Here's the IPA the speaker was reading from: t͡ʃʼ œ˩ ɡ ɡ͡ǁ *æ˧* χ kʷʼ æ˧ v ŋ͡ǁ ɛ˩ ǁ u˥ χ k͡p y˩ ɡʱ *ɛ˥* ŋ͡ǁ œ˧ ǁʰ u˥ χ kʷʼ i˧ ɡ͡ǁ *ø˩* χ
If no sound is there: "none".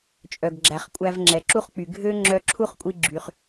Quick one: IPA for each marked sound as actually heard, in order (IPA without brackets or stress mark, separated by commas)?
æ˩, ø˥, y˩